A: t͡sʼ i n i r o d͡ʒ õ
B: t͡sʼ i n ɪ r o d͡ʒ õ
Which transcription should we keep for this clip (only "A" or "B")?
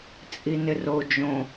B